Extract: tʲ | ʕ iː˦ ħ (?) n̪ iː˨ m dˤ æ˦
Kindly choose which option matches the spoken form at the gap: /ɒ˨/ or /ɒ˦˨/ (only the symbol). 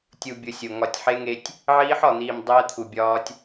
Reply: ɒ˨